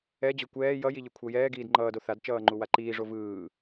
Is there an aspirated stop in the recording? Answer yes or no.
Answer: yes